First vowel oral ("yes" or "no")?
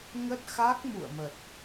yes